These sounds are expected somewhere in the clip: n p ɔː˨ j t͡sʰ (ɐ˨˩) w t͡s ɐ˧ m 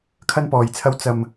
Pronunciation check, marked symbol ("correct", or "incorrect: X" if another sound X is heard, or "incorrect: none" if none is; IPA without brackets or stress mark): incorrect: ɐ˧